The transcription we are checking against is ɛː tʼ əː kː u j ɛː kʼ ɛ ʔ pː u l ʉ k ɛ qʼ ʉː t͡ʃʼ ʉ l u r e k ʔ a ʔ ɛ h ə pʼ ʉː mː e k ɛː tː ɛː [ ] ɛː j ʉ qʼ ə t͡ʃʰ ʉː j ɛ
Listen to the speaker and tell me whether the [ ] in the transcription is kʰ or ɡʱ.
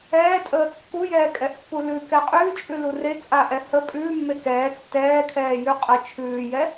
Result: kʰ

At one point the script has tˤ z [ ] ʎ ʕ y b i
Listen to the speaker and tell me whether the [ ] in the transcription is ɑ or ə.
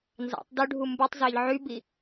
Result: ɑ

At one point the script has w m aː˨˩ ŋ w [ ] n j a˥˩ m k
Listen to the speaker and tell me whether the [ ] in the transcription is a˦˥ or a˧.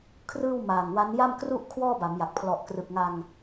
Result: a˦˥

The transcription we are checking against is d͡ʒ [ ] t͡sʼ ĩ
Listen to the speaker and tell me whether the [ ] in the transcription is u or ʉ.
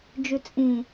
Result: ʉ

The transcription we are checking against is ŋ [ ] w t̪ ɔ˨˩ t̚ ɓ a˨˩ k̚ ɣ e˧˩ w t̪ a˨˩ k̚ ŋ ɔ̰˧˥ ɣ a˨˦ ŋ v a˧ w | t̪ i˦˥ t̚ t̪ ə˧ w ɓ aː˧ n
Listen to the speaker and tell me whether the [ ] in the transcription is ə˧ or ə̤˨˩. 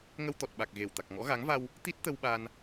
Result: ə˧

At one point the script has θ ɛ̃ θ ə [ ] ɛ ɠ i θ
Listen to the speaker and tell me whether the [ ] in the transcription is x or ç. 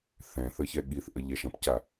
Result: ç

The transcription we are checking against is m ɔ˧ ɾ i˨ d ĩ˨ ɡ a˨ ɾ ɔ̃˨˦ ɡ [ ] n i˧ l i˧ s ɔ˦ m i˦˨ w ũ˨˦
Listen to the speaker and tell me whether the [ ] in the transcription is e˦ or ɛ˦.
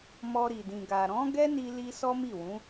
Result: ɛ˦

